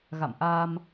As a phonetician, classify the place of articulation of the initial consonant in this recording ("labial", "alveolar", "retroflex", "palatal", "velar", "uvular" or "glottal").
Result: velar